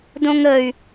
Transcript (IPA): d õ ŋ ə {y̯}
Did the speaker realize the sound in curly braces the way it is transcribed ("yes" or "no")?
yes